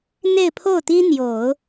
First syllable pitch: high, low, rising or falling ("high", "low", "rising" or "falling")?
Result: falling